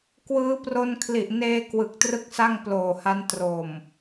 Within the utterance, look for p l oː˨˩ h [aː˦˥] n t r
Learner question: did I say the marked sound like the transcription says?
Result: no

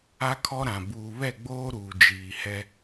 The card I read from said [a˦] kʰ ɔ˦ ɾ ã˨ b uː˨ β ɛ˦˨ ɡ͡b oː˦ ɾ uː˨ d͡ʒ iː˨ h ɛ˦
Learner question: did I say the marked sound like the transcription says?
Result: yes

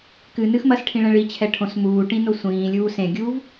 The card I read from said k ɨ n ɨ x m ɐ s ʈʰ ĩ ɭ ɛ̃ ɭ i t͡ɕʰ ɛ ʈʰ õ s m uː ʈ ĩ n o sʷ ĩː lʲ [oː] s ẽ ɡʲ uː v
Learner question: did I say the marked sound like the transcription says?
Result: no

